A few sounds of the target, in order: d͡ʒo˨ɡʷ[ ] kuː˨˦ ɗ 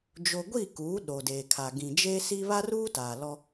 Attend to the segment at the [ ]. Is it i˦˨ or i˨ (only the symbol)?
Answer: i˦˨